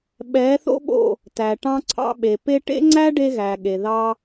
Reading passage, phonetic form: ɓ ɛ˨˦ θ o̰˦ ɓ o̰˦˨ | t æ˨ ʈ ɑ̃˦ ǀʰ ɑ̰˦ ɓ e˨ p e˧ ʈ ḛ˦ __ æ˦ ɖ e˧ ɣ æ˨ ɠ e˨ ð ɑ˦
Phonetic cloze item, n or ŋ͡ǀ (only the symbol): ŋ͡ǀ